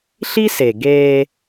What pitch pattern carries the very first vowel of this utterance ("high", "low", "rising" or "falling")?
high